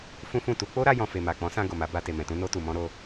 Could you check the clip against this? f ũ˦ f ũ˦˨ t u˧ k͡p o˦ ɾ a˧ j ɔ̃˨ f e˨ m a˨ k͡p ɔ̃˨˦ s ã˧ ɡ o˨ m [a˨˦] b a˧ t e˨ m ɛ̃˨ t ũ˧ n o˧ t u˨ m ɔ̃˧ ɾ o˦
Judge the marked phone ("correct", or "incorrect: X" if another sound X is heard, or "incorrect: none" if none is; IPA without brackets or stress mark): correct